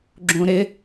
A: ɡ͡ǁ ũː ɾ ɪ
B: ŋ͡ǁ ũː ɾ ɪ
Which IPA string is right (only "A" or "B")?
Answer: A